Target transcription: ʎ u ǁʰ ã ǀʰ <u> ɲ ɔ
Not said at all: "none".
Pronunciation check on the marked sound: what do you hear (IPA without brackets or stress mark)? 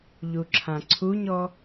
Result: u